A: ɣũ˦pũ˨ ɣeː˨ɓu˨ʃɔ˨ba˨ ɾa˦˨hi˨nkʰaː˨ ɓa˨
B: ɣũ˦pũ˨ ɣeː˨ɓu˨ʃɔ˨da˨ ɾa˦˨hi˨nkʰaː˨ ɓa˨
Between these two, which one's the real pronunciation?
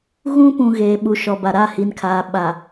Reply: A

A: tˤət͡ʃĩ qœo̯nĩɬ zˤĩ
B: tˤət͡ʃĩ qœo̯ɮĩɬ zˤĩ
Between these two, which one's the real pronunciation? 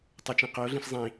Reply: B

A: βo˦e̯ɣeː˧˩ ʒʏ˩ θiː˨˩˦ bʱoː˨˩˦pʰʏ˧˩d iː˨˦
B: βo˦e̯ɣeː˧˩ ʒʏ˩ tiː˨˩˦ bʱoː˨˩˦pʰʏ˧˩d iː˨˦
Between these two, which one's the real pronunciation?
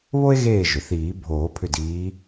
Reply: A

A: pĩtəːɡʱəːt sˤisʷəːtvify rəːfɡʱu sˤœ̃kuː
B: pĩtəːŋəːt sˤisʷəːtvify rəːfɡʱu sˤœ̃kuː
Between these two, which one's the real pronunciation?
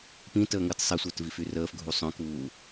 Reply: B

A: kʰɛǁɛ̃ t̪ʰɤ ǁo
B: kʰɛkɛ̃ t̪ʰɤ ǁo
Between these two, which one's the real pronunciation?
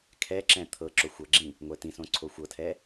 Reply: A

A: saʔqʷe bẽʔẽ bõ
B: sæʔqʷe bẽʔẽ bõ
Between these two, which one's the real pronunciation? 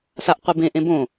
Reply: A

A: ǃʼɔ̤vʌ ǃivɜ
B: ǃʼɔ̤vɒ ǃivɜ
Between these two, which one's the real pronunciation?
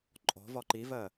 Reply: B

